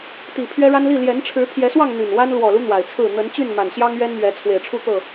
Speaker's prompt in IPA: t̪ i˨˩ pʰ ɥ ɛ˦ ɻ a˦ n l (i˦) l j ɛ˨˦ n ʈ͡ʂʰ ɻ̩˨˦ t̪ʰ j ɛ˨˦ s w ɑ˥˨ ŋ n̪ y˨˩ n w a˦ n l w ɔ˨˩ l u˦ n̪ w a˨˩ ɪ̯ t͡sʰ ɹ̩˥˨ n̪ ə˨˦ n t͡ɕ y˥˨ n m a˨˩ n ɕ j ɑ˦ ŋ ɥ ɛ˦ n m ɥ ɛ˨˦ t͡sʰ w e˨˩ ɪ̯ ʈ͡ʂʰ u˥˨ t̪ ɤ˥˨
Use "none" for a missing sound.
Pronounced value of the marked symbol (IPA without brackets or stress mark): i˥˨